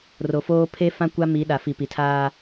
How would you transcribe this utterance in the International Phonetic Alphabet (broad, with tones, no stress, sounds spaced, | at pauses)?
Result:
r o˨ f oː˦ pʰ e˦ f ã˦ kʷ a˦ m i˨˦ ɗ a˨ f i˨ p i˨ tʰ aː˦